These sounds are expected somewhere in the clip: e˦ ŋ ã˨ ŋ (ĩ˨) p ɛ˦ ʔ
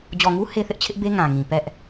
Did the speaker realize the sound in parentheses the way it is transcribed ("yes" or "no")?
yes